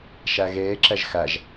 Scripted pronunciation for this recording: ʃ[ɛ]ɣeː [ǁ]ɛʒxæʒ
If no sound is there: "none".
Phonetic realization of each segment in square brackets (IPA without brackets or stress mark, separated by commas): æ, ǁ